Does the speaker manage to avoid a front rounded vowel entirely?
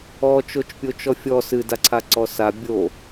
yes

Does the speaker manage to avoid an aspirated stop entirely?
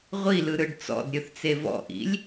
yes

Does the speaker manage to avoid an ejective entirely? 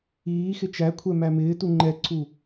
yes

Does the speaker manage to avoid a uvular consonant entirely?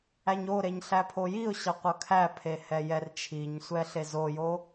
no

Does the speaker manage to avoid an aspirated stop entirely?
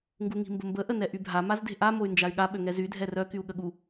yes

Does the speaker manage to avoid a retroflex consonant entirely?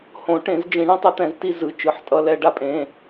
no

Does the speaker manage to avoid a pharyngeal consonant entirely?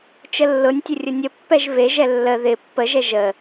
yes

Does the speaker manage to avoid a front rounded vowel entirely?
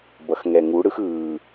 yes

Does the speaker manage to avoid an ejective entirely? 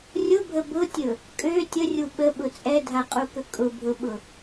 no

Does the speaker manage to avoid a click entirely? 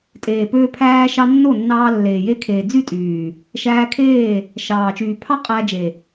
yes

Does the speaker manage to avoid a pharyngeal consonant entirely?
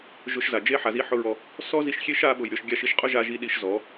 no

